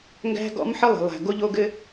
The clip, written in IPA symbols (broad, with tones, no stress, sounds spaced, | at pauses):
ŋ ɡ æ̤˦ ɡ ɔ̰˦ m ħ ə˦ lˠ ə̤˨ lˠ æ̤˨ ɡ o˦ ʎ o˦ ɡ ɘ˦